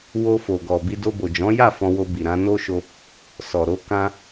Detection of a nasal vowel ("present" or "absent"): present